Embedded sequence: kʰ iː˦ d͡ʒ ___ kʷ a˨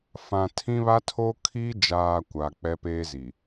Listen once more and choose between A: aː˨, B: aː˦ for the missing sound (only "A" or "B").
A